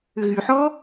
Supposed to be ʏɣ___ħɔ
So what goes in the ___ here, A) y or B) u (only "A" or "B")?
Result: A